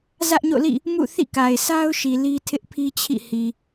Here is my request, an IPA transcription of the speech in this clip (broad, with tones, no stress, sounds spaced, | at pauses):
z ä˦ ʔ ɲ o̰˦˨ l ḭ˦˨ | m ṵ˦˨ θ ḭ˦˨ k a˨ ɪ̯ s a˦ ʊ̯ ʃ i˨ l i˦ tʰ ɪ˦ ʔ pʰ i˦ t͡ɕʰ ḭ˦˨ h i˨